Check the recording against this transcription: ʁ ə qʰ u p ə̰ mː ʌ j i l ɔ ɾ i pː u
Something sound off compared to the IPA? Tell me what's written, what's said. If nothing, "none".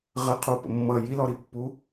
none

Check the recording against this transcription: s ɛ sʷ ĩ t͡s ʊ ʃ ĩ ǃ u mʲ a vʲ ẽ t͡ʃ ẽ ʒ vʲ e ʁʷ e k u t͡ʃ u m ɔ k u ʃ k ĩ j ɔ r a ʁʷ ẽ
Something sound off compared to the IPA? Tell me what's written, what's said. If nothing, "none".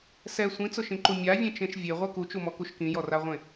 ʒ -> ʃ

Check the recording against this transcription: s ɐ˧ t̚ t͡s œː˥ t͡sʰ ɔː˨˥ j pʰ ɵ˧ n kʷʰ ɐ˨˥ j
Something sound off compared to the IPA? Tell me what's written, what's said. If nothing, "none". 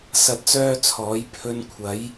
none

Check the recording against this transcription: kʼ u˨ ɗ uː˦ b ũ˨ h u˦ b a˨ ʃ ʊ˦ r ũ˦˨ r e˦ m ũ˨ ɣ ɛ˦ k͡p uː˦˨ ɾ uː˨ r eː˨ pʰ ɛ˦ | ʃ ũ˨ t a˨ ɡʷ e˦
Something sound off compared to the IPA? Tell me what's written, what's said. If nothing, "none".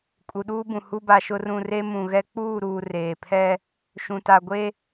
none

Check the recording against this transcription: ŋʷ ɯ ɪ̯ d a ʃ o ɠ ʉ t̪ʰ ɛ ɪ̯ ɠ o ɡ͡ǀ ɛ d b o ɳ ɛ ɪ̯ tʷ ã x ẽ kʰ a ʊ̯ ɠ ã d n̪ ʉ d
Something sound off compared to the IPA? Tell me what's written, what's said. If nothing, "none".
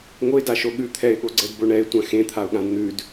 kʰ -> t̪ʰ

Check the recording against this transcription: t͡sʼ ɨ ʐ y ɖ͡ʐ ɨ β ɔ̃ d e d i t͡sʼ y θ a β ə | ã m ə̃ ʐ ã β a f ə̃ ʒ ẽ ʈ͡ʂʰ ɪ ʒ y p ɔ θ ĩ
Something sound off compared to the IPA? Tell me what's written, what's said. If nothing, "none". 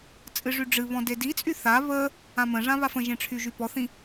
ɪ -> y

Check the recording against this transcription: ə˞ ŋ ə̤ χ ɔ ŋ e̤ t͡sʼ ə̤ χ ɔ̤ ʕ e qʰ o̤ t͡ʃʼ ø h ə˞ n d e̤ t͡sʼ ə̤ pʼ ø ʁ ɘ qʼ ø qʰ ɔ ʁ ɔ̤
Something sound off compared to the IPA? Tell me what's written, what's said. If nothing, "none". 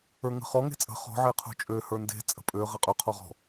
none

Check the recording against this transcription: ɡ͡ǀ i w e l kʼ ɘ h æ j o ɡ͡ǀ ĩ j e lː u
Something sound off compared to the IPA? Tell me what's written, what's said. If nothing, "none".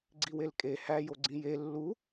ɘ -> e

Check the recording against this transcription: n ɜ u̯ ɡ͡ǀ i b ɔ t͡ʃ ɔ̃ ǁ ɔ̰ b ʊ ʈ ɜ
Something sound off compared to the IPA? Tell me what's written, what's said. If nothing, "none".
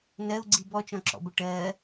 none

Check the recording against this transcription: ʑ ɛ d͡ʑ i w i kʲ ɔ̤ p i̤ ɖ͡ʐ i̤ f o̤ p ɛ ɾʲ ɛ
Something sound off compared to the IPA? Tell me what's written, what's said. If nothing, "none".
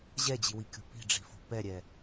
ɔ̤ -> o̤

